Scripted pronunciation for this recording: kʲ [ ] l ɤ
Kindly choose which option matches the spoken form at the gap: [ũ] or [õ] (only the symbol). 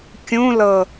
ũ